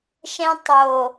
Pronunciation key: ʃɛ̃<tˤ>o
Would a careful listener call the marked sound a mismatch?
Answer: no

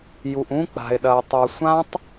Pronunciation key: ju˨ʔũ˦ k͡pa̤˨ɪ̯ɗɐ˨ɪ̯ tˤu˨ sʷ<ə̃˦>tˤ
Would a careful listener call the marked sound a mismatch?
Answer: yes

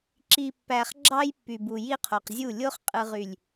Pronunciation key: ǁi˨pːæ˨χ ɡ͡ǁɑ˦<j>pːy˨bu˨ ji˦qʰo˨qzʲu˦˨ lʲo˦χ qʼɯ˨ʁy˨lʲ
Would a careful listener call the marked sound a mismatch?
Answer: no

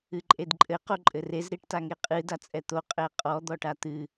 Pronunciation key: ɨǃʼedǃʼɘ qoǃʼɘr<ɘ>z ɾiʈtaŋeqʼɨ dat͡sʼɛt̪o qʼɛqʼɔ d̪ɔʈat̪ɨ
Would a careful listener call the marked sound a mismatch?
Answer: yes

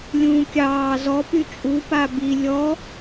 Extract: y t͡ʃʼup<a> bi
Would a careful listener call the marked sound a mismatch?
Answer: no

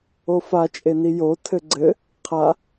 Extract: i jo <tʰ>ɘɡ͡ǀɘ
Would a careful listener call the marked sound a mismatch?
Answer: no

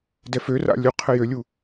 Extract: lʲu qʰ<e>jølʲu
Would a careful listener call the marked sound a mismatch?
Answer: yes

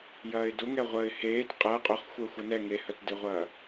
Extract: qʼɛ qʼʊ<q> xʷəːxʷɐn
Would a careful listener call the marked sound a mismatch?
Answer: yes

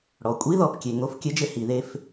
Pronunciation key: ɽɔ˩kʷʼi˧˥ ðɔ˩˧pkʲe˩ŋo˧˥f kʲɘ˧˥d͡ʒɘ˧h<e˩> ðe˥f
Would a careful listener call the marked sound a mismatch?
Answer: yes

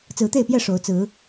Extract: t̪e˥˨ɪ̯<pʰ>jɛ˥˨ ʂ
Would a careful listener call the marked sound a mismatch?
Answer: yes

